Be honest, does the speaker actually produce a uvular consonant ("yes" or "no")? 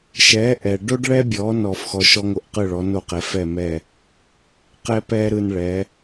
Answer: yes